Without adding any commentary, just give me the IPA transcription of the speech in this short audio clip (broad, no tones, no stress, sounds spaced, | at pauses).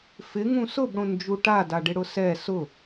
f ɪ ŋ ũ s ʊ b ɽ õ n d͡ʒ u ʈ a d a ɖ ɪ ɽ ʊ s ɛ s ʊ